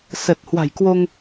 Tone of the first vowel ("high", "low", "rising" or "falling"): low